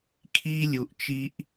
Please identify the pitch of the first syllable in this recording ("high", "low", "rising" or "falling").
high